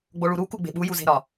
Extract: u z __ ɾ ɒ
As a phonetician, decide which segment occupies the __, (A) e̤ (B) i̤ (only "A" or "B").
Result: A